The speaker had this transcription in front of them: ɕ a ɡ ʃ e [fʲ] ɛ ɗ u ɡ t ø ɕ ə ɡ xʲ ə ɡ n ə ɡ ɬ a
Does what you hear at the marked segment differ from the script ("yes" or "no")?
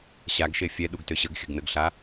no